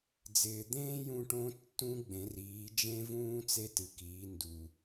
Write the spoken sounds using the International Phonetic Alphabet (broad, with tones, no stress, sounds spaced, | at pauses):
d͡z ɪː˩ d̪ ẽː˥ j ũ˧ ʈ õ˧˥ tː ũ˥ ɡ͡b ẽ˩˧ r iː˩˧ d͡ʒ ẽ˥ v ũː˥ t͡s e˥ t ɨ˩˧ k iː˩˧ n d u˩